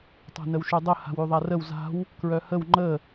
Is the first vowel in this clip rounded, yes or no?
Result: no